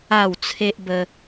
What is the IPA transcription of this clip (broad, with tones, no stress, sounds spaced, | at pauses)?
a˥˧ w t͡sʰ e˦ ʔ b ə˧